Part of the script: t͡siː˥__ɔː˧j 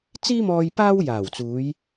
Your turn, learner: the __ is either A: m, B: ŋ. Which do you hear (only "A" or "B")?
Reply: A